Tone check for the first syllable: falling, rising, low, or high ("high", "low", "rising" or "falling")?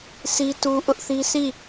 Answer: high